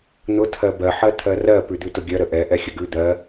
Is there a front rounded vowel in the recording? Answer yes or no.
no